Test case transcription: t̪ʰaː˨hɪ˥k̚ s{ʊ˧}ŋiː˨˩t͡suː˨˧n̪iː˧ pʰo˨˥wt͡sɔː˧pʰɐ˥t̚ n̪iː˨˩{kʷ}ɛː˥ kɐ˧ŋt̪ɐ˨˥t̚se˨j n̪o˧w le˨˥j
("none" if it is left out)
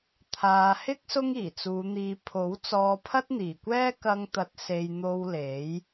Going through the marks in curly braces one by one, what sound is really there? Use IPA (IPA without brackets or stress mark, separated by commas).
ʊ˥, kʷ